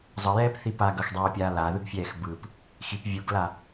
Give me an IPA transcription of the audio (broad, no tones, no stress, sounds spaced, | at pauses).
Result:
zˤ ʌ j ɛː p θ i p a ɡ ʌ x dˤ ɛː pʲ aː l a ð ɯ ɡ fʲ ɛː x b ɯ p | x i p vʲ u ɡ l a